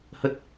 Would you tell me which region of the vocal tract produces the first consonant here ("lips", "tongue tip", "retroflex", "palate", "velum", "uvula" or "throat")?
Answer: throat